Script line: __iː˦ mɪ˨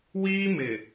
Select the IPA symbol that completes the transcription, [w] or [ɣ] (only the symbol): w